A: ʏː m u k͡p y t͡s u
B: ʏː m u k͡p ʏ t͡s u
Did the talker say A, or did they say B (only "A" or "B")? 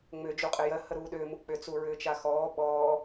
B